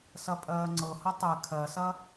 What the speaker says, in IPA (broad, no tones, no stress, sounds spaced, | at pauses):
s ɐ pʼ ɜː ŋ͡ǀ ɤ h ɐ tˤ ɛ kʰ ɜ s ɐ